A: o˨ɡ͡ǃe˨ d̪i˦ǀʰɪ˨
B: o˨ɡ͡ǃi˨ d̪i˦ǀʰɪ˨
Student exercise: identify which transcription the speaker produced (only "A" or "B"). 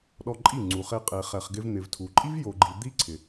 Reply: B